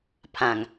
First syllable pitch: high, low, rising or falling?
low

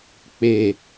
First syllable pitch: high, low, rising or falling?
low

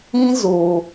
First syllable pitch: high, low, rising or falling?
high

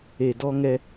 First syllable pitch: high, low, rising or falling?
low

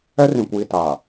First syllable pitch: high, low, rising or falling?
high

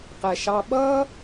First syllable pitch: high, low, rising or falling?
low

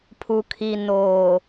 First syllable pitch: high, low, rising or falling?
low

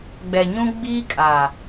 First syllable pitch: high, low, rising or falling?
low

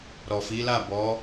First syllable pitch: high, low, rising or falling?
low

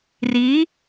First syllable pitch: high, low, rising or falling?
rising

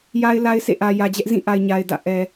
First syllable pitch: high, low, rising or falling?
high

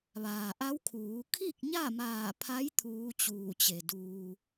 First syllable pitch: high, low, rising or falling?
low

